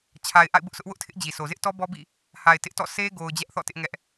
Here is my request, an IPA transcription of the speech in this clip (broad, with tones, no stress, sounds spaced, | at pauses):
t͡ɕʰ a˨ ɪ̯ ʔ a̰˦˨ ɪ̯ b ʊ˦ ʔ sʰ ʊ˦ ʔ w ʊ˦ ʔ tʰ ɪ˦ ʔ d͡ʑ i˨ s o˨ z ɪ˦ ʔ t ɔ˦ b ɔ˦ b ḭ˦˨ | h a˨ ɪ̯ t ɪ˦ ʔ t ɔ̰˦˨ s e˦ ɡ o˨ ʊ̯ d͡ʑ ɛ˦ ʔ θ ɔ̰˦˨ t ɪ˦ ʔ ŋ ɛ˦ ʔ